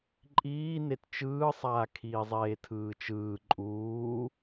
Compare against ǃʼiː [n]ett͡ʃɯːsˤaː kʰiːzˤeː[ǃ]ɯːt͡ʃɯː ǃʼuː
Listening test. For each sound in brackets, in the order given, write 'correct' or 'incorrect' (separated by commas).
correct, incorrect